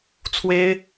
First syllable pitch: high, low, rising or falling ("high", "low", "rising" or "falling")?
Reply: high